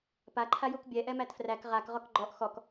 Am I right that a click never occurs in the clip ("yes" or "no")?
no